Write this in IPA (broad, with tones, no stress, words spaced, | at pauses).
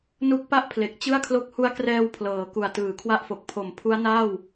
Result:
nu˦˥k̚pa˥˩ʔpʰle˨˩k̚ t͡ɕɯ˥˩a̯kʰlo˦˥k̚ hu˦˥a̯krɛː˧w pʰlɤː˩˦ ku˨˩a̯tɯː˨˩kʰwa˥˩ʔfo˨˩k̚ pʰo˨˩m pʰu˦˥a̯ naː˥˩w